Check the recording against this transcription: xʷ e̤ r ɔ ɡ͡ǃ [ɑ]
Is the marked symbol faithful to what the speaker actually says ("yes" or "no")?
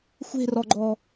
no